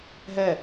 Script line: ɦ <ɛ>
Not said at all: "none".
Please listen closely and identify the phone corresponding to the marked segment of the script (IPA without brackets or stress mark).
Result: ɛ